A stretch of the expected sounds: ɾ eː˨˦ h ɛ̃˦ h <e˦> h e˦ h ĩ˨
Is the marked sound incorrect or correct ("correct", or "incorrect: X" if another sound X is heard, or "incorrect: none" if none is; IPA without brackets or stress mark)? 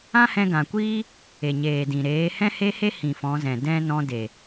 correct